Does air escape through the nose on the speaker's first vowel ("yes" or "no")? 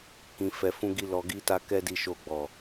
yes